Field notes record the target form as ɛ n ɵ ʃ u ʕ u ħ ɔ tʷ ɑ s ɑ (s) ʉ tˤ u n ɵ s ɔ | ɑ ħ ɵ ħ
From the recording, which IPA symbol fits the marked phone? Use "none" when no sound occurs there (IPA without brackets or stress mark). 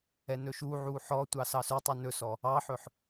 s